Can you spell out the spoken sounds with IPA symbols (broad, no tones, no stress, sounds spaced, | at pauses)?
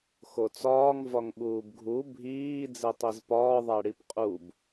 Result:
x o t͡s ɒː ŋ v ɒ ŋ ɓ uː b ɡʱ u bʱ iː d͡z e tˤ i z p ɒː ðˤ æ ɽ i p qʼ u b